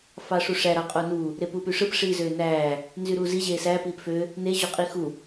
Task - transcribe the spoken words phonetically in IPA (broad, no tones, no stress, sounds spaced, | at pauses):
f ɑ ʂ u ʂ æ ɾ ɑ qʼ o n u | ɾ e p uː p y ʂ ɯ p ʂ iː z øː n æː | n z y ɾ uː z i ʑ eː s æː p iː p f ø | n e ʑ o qʼ i x u